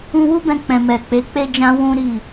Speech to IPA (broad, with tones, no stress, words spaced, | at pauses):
ũ˦ wu˦bɛ̃˧ k͡pɛ̃˨mɛ˨ k͡pe˨˦k͡pe˦d͡ʒã˦ wũ˦ɾi˦˨